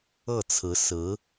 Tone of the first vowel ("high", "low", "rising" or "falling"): falling